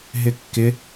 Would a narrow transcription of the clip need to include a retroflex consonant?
no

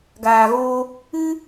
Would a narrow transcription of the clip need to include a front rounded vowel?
no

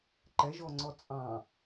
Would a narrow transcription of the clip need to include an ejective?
yes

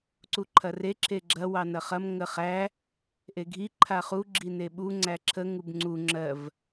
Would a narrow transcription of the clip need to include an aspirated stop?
yes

